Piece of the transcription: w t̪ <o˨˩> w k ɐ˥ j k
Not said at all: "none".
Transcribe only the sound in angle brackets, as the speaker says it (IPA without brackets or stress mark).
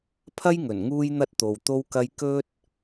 o˥